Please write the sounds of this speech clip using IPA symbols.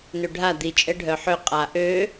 n ø ɖʱ a d̪ i t͡ʃʼ ɛ ɖʱ œ ħ ø qʼ a ʔ ø

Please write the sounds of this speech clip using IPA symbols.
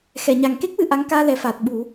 x ɛ˨˩˨ ɲ a˨˩ ŋ k e˦˥ k̚ w ɨ˧ ʔ a˧˥ ŋ k aː˧ l ɛ˨˩ f aː˨˩ t̚ ɓ u˨˩˦

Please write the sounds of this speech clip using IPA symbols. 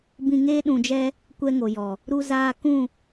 b ĩ˧ ŋ eː˦ ɗ ũ˧ d͡ʒ ɛ˦ | kʷ ɛ˦ ŋ o˨ j ɔ˨ | ɾ u˧ z aː˧ k ũ˦˨

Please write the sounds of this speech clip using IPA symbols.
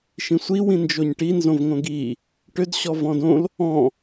ʃ ĩ sʷ i w ĩ n d͡ʒ o ɲ ʈ i n z õ v ŋ õ ɡ i | ʈ ø d ɕ ɔ v ɔ̃ d õ l | ɔ̃

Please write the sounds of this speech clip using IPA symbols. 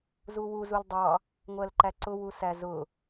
z u w u z u l dˤ ɑ | ŋʷ ɜ l ǃ æ ǀ ʊ w u s æ z ʊ

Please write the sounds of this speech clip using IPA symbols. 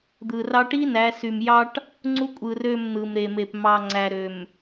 d̪ ɯ˨ r ɑ˦ ʈ i˦ n æ˨˦ s y˨ m j ɑ˦ ʈ | ŋ͡ǀ u˦ kʷʼ ɯ˨ r ø˦˨ m n̪ ɯ˨ m ɾ e˨ m e˨ p m ɑ˨ ŋ͡ǀ æ˨ ɾ ø˨ m

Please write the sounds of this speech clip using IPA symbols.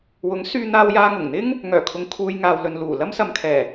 w ʊ˨˥ ŋ s yː˧ n̪ aː˧ w j aː˧ ŋ ʊ˨˩ ŋ n̪ ɪ˥ ŋ | ŋ œː˨˩ kʰ ʊ˨ ŋ kʰ uː˨ j ŋ aː˨ w l ɵ˨ n l uː˨˩ l ɐ˥ m s ɐ˨ m kʰ ɛː˨˩

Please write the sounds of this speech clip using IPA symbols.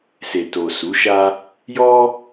s e˨ t o˨ s u˨˦ ʃ a˦ | j ɔ˦

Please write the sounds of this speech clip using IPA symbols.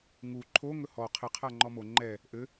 ŋ u ǃʰ o ŋ ɵ h ɔ qʰ ɘ qʰ a ŋ͡ǃ ɔ m o ŋ͡ǃ ɛ | ʔ ɘ

